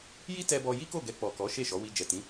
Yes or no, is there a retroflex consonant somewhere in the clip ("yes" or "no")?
no